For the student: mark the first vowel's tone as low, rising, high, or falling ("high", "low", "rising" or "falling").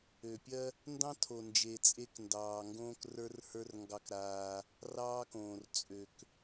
low